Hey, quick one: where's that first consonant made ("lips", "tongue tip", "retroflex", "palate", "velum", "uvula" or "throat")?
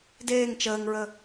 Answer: tongue tip